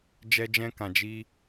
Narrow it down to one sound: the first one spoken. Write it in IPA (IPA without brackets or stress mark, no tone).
d͡ʒ